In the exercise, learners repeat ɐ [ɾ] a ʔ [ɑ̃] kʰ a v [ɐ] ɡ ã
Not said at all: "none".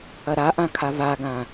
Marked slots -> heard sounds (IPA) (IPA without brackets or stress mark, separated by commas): ɾ, ã, a